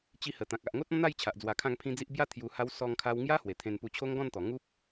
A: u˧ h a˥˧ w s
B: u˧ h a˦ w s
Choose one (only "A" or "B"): B